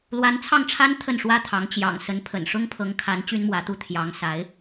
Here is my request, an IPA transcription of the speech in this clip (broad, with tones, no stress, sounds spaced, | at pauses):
l w a˧˥ n t͡sʰ ɑ˥˩ ŋ ʈ͡ʂʰ a˥ n t̪ʰ ə˥˩ n ʂ w ä˥ t̪ʰ ɑ˧˥ ŋ t͡ɕ j ɑ̰˨˩ ŋ s ə˧˥ n pʰ ə̰˨˩ n ʂ ʊ˥ ŋ pʰ ɤ˧˥ ŋ kʰ a˧˥ n t͡ɕ y˥ n m w ä˧˥ t̪ u˥˩ t̪ʰ j ɑ˧˥ ŋ s a˧˥ ɪ̯